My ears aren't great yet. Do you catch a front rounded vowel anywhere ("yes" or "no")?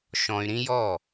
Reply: yes